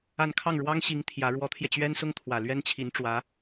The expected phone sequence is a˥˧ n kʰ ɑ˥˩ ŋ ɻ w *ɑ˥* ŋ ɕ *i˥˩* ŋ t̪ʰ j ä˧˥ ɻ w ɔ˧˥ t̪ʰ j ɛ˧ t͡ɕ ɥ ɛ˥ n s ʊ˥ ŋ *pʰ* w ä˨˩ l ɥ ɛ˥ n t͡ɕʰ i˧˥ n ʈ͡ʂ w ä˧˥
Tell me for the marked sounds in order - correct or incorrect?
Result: correct, incorrect: i˧˥, incorrect: t̪ʰ

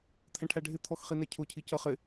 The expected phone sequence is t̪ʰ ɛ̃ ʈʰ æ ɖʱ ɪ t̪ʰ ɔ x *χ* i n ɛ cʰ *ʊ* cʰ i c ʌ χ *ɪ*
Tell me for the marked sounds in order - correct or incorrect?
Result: correct, correct, correct

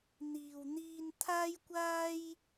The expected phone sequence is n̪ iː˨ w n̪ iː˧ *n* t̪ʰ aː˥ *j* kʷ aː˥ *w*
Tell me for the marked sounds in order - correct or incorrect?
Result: correct, correct, incorrect: j

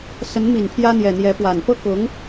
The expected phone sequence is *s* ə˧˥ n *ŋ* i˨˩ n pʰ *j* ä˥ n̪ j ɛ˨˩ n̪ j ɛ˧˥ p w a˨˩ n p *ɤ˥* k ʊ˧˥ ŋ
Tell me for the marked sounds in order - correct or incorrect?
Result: correct, incorrect: m, correct, correct

